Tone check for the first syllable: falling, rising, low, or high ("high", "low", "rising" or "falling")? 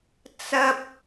high